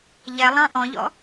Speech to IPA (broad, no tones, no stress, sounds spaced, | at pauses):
ʎ ɛ lˠ ɑ̃ ʔ ɔ̃ ʎ ɔ̰